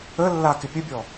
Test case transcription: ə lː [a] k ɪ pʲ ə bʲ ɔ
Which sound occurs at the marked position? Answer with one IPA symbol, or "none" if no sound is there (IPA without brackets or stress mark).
a